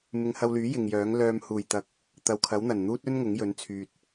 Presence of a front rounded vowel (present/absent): present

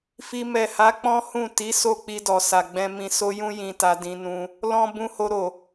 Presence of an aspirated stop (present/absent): absent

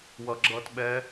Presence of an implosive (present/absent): present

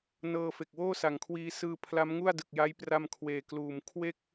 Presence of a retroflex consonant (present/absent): absent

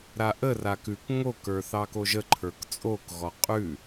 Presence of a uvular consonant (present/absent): present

